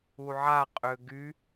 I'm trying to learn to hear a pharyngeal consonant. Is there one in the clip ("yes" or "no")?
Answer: yes